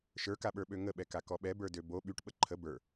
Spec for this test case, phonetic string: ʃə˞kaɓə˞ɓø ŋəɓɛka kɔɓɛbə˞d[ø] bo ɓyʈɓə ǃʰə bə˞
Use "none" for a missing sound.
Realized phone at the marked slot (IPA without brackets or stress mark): ø